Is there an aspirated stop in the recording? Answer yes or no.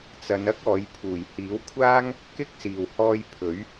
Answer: yes